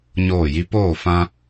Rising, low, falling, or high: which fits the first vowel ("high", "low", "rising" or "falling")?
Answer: falling